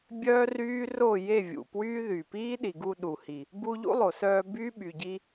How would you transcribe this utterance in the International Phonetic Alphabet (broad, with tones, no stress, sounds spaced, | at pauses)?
bʲ œː˦ r yː˦ r o˦˨ j e˦˨ vʲ ṵ˨ p w yː˦ ð y˨ p iː˦ ɗ i˨ ɡ u˧ ɗ u˨ h i˨ | b u˧ ʎ ṵ˦ lˠ o˨ s œː˧ b yː˦ ɓ y˨ ɟ i˧